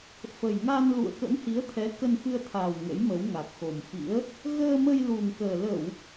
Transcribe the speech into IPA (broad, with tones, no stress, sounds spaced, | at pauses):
f ə˨˩ j ŋ a˧ n l ṵ˧˨ ə̯ k ə̰˧˥ m h i˨˦ ə̯ t̪ʰ ɛ˨˦ k ə˧ n f ɨ˧ ə̯ t̪ʰ aː˨˩ w ŋ ə̰˧˥ j m ə˨˦ w ŋ a˨˩ k̚ x o˨˩ m f ḭ˧˥ ə̯ | ɣ əː˧ m ə˧ j l u˨˩ ŋ k əː˨˩ l ə˧˩˨ w